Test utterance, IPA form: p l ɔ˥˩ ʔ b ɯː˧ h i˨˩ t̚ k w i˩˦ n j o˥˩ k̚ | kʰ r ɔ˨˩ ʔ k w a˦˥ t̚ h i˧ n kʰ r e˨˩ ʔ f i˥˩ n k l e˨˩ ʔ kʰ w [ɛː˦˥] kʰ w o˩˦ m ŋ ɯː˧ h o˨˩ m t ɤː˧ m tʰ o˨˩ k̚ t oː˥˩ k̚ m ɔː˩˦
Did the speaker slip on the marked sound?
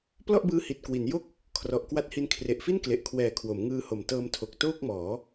yes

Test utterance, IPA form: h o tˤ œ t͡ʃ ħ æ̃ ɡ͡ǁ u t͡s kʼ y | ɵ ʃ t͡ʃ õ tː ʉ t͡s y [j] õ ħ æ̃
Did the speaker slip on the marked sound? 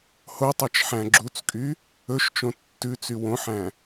yes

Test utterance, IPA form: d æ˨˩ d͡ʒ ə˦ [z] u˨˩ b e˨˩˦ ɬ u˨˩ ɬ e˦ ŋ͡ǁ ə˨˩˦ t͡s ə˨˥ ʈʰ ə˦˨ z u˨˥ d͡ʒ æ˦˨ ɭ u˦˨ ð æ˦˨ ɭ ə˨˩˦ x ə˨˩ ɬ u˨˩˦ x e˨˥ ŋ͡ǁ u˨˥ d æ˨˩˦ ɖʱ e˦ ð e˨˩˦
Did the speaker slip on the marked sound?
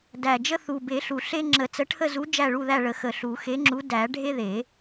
yes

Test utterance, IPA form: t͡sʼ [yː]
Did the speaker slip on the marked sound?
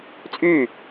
no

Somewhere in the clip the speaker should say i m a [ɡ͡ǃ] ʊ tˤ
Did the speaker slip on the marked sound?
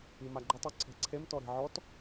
no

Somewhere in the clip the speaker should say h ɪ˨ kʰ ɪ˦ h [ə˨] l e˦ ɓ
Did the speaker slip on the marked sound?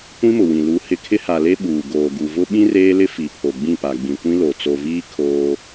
yes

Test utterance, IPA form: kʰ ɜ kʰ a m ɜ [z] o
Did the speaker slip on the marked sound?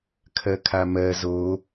no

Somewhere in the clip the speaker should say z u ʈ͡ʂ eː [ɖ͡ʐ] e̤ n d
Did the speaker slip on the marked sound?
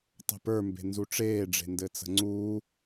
no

